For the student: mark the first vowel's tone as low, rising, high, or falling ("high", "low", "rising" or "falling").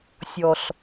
low